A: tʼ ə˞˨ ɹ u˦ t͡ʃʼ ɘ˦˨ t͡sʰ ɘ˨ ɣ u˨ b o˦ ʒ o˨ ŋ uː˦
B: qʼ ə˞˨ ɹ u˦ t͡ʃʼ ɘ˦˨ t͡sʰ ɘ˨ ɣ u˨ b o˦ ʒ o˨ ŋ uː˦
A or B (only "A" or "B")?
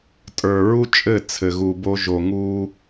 A